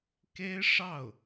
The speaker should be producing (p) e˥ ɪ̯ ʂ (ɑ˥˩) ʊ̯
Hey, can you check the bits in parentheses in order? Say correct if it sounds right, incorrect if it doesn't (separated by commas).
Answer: incorrect, correct